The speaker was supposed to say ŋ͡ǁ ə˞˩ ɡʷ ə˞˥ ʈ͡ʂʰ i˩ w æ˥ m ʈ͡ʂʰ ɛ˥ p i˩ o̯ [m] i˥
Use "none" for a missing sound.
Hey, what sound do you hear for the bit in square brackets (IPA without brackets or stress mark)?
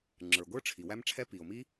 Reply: m